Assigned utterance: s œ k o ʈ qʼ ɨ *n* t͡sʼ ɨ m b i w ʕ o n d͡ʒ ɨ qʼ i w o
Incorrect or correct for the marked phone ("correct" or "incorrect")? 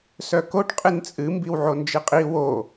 correct